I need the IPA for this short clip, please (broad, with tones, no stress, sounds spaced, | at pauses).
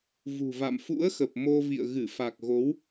v ṳ˨˩ v a̰˧˨ m f ṵ˧˥ ə̯ x ə˨˩ p̚ m o˧ v ḭ˧˨ ə̯ ɣ ɨ˧˩ f a˨˩ k̚ ɣ o˨˦ w